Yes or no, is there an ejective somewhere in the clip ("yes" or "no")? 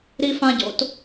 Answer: no